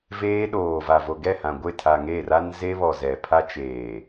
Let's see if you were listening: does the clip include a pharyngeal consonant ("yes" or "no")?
no